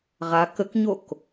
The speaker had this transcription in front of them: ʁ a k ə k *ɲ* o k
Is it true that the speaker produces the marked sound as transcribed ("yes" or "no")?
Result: yes